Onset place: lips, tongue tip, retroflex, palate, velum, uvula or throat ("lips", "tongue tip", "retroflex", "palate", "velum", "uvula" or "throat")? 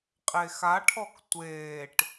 uvula